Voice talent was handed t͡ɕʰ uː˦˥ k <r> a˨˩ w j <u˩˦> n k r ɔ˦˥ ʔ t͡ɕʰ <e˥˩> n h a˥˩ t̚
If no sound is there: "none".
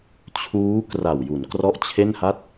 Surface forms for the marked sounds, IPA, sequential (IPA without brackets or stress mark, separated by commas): r, u˩˦, e˥˩